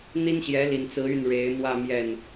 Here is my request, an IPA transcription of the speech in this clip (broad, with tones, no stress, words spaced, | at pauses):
n̪i˥nɕjɛ˧˥li˨˩nt͡sɹ̩˧˥ y˥˩nɻe˧˥ɪ̯mwä˥˧ mjɛ˥˩n